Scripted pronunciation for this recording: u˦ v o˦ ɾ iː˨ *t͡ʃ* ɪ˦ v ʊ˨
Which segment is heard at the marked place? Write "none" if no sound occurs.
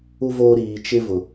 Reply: t͡ʃ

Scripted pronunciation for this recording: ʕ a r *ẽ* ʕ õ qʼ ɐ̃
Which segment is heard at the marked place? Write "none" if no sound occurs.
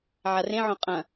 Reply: ẽ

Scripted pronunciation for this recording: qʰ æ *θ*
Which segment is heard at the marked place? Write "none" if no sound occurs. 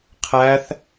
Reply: θ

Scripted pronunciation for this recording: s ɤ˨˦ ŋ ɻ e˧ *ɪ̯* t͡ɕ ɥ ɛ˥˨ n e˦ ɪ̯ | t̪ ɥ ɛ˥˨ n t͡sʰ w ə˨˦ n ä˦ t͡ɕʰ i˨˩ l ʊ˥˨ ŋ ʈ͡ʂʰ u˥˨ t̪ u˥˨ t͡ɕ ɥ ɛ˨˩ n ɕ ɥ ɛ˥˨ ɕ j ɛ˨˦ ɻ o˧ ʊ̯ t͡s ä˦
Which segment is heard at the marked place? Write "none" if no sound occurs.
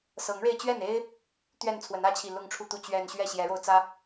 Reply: ɪ̯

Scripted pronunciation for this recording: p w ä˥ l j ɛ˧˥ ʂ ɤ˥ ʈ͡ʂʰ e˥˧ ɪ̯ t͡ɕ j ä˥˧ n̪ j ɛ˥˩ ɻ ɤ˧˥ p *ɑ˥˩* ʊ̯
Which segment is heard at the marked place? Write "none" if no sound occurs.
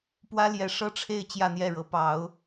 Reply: ɑ˧˥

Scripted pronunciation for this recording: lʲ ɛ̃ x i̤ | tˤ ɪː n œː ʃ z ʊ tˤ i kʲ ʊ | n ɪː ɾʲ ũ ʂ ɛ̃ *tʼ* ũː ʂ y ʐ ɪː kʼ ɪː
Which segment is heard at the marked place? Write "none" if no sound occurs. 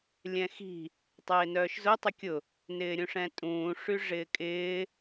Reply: tʼ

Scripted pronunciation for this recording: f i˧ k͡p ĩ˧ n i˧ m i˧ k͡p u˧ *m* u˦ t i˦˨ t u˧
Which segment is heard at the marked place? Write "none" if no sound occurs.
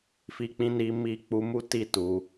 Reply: m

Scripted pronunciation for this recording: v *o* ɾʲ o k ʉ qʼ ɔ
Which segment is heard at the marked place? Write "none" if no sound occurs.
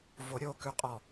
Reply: o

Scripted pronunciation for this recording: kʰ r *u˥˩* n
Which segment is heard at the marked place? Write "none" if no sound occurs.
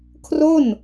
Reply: o˥˩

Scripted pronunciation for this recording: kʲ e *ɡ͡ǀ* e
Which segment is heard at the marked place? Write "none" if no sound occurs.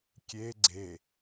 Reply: ɡ͡ǀ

